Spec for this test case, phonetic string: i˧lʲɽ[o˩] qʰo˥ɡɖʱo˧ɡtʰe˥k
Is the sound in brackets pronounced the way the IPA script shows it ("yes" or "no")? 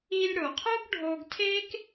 yes